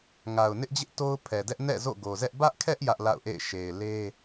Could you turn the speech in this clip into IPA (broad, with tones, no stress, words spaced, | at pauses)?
ŋa˨ʊ̯nɪ˦ʔd͡ʑɪ˦ʔ to˦ʊ̯ pʰɛ˨dɛ˦ʔ nɛ̰˦˨ zo̰˦˨ɡo˨zɛ˦ʔ bä˦ʔkʰɛ˦ʔ jä˦ʔla̰˦˨ʊ̯ʔḛ˦˨ɪ̯ ʃe˨ɪ̯le˦